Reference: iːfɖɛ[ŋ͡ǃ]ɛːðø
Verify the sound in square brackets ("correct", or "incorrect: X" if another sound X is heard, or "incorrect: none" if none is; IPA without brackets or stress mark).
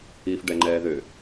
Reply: correct